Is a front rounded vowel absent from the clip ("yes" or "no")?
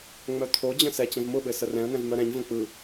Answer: no